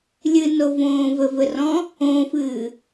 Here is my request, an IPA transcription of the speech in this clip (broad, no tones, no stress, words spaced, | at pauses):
lʲɨnovõː vɘvɘrɔ̃ | õːfɨː